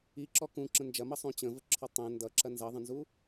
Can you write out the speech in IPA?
i ǁ ɔ k ũ ǁ ə̃ n d͡ʒ ɐ m ʌ sˤ ũ t͡ɕ ə̃ v ə ǁʰ ɔ tˤ ə̃ n d ʌ ǁ ɐ n z ɐ ðˤ ə̃ n z u

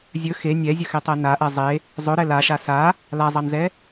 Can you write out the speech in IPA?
zʲ ɵ x e nʲ ɛ zʲ ɵ x e tˤ ɛ n a ʔ ɛ zˤ e | zˤ ɵ ɾ ɛ l a ʃ a s a | l a zˤ ɑ n z ɛ

